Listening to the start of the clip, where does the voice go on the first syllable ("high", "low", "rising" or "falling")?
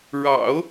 low